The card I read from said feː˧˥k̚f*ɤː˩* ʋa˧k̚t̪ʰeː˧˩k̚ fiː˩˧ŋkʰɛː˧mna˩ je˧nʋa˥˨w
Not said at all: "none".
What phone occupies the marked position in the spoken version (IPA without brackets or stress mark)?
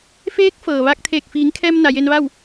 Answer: ɤː˩